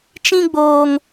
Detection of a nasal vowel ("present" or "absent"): present